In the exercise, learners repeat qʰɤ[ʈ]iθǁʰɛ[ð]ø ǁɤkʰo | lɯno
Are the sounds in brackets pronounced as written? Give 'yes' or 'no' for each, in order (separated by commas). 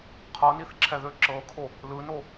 no, yes